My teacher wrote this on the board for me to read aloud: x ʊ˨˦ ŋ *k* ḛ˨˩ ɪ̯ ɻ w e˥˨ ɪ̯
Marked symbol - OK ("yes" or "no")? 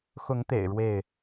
no